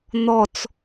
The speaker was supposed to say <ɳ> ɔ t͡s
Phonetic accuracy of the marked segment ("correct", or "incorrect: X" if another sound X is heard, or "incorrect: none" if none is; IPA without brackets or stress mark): incorrect: n̪